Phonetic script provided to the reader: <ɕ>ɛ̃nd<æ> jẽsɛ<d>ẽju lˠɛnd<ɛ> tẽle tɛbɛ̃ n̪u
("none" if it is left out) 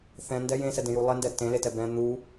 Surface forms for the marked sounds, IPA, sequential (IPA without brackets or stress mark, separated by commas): θ, ɛ, d, ɛ